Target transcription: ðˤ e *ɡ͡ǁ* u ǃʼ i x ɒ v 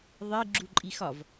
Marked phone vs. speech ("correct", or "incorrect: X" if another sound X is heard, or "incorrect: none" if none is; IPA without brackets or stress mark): correct